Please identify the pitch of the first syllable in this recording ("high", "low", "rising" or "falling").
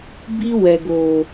high